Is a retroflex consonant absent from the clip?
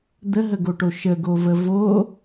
no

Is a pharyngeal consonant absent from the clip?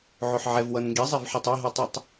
no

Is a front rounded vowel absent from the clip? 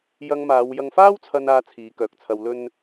no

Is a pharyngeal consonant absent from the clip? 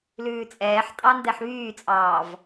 no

